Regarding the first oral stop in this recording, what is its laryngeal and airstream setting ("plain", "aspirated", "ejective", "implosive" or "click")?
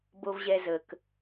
plain